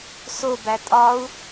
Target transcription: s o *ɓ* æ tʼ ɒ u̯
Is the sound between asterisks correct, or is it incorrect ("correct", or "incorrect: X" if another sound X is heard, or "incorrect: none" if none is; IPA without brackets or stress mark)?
incorrect: b